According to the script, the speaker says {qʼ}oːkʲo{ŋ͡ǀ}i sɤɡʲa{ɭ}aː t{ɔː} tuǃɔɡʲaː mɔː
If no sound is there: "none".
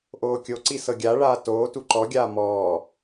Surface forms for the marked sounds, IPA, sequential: ʔ, ǀ, ɭ, oː

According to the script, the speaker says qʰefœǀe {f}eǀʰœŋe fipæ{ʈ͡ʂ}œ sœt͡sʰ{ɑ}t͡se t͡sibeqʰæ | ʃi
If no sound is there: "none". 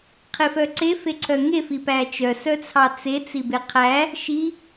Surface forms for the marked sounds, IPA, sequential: f, t͡ʃ, ɑ

